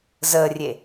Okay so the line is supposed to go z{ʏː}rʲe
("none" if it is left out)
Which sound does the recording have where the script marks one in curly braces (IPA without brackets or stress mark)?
əː